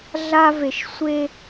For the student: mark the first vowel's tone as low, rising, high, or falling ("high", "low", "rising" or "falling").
high